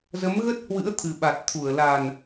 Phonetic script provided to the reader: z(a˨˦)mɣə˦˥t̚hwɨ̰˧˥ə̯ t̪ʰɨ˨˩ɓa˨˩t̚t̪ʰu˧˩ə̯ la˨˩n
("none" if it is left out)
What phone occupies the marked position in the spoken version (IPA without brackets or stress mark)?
ə˨˦